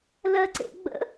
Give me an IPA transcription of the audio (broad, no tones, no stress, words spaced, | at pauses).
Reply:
lɜǀḛɡ͡bə̰